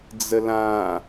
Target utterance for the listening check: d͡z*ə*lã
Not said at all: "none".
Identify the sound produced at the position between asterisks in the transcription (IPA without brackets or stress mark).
ə